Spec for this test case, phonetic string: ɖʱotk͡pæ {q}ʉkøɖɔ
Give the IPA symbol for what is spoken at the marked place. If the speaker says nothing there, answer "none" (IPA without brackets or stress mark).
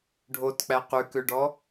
q